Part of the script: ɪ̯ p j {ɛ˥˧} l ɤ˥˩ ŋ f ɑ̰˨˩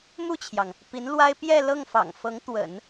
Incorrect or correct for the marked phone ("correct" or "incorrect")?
correct